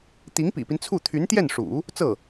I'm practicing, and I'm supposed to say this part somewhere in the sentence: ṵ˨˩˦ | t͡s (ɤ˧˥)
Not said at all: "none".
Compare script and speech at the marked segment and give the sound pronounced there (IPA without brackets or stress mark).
ɤ˥˩